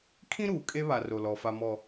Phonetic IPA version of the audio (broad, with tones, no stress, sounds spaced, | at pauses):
kʰ ĩ˦ ɾ uː˨ kʼ e˦ β a˨ r o˨ l ɔ˨ f a˨ m ɔ˨